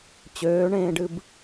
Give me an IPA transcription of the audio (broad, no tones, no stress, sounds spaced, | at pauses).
t͡ɕ øː ɳ ẽː ɖ ɨ b